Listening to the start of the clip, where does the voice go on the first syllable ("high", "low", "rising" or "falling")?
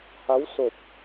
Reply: rising